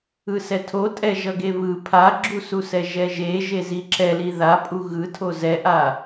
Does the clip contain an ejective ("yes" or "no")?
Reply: yes